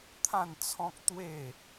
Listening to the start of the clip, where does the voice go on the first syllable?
falling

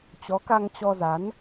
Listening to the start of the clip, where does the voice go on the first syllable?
rising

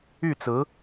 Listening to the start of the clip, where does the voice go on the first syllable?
falling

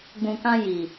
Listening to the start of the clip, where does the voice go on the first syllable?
low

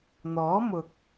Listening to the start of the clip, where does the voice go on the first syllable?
rising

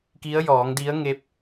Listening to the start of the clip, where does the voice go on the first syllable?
rising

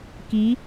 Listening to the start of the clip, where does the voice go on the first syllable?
rising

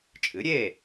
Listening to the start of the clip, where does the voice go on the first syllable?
rising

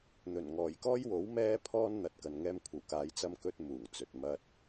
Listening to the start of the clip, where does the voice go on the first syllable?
low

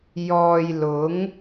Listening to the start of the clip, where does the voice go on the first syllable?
low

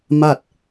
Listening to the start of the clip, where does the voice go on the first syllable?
falling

